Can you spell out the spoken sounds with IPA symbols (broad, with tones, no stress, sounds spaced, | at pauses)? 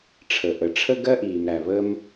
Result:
ʈ͡ʂʰ ə˩ ʔ ə˩ ʈ͡ʂʰ ə˥ ɡ ɜ˥ ʔ iː˩ m ɾ æ˩ β ə˥ m